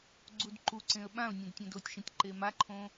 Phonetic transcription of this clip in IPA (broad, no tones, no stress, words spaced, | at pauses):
ɡ͡ǀudǃuǀẽə̯ ɓãʊ̯nʲẽd tʲõdotʲʃĩtʲ ǃemaǃʰõ